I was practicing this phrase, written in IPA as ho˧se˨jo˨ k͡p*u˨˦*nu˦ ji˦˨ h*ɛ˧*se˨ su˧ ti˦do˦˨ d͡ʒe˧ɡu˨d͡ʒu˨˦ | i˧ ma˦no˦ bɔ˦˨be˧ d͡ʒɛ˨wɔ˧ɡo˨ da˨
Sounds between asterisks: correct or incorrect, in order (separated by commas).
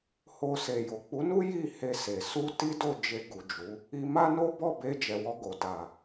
correct, incorrect